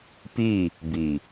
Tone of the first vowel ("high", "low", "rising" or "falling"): falling